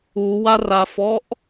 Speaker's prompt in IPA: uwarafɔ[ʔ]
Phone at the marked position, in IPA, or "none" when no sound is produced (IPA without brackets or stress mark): ʔ